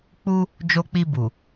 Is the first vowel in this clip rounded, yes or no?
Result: yes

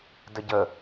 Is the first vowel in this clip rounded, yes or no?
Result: no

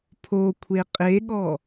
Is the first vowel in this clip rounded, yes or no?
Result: yes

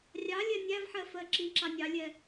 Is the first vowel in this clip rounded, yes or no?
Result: no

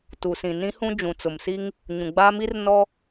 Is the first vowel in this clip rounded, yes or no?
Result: yes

